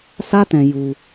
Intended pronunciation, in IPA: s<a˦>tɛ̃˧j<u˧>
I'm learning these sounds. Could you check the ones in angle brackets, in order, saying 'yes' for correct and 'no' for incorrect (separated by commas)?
yes, yes